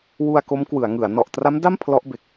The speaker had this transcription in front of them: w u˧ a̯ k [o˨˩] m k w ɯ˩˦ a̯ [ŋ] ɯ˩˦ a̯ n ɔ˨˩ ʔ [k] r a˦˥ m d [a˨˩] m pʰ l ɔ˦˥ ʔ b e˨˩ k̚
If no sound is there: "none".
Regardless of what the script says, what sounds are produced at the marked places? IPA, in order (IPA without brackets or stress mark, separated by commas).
o˦˥, ŋ, t, a˥˩